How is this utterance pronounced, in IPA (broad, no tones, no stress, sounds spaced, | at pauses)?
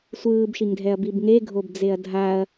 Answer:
sʷ ɯː b ʃ i ŋ dʱ ɛ ɐ̯ b i b ŋ e ɡʱ o b d͡z e ɐ̯ dʱ a ɐ̯